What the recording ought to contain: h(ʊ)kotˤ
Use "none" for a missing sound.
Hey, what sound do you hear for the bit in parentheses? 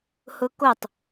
ʊ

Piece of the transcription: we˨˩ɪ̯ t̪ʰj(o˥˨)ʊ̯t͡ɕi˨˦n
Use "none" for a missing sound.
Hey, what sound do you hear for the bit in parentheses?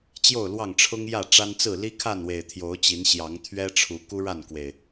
o˨˦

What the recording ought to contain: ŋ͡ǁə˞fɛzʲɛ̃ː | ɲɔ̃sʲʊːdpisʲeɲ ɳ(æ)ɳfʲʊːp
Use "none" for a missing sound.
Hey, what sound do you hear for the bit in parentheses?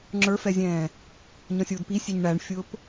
æ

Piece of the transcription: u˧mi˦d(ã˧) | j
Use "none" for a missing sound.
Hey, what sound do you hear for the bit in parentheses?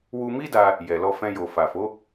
a˧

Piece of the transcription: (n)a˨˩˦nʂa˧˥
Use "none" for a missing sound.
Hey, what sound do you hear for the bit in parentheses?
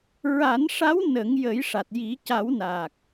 ɹ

